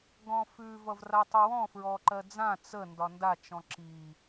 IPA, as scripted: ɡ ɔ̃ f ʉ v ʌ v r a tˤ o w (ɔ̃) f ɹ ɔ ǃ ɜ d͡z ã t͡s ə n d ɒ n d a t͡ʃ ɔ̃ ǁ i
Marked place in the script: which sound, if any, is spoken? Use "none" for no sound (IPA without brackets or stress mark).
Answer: ɔ̃